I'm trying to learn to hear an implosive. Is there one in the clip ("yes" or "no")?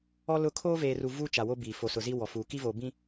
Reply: no